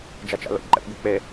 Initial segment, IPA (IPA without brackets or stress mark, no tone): d͡ʒ